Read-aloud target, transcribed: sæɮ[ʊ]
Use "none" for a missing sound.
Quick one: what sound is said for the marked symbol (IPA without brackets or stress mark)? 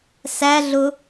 ʊ